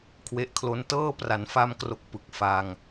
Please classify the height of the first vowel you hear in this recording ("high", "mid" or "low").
mid